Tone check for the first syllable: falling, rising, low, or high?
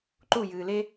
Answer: falling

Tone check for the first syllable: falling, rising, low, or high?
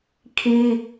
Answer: high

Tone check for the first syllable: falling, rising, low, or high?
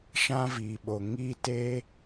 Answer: high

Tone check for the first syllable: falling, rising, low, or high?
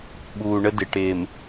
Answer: low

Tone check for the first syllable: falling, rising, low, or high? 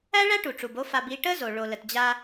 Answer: high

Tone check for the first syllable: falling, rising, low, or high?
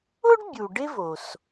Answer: high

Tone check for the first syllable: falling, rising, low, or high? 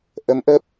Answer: rising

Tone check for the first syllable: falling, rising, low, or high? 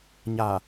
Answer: low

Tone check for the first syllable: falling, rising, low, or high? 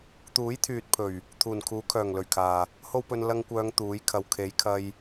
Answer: rising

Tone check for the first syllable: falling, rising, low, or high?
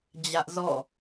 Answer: high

